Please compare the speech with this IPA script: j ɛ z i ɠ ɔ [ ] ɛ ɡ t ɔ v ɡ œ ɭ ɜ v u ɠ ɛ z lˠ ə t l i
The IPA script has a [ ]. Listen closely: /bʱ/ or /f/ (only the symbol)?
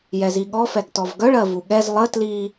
f